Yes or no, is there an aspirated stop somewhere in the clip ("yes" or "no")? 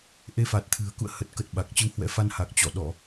yes